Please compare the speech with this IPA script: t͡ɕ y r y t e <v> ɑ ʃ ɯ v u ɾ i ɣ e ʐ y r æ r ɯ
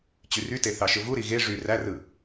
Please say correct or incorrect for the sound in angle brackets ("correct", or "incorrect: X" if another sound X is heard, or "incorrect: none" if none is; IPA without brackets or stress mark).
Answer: incorrect: θ